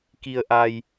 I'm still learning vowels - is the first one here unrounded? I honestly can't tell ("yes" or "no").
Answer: yes